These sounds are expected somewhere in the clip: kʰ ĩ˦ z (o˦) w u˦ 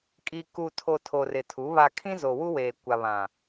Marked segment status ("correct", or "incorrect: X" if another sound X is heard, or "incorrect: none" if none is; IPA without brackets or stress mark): incorrect: o˨